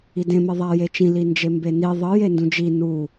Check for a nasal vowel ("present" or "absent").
present